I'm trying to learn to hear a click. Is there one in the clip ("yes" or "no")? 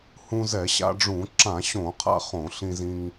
yes